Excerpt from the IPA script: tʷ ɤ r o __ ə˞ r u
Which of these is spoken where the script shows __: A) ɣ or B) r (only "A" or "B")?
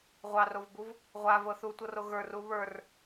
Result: A